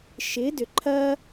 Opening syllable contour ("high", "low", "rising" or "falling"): rising